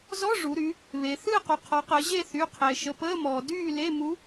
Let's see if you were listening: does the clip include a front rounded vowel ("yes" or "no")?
yes